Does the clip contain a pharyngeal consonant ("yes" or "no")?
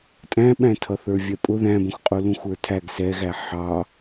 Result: yes